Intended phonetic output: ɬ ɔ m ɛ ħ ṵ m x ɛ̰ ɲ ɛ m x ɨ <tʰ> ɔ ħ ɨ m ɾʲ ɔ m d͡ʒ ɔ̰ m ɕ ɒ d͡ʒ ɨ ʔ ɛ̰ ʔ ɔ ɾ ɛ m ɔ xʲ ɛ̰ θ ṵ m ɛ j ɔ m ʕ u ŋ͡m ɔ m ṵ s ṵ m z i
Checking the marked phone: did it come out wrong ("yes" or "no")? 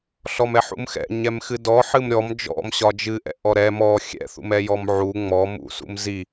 yes